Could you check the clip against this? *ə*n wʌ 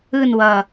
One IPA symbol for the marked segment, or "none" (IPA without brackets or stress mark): ɯ